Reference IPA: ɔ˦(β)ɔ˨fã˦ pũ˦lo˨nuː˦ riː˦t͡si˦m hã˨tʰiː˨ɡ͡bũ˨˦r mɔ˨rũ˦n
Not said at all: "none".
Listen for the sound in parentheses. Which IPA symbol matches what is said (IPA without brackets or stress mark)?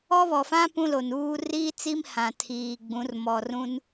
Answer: β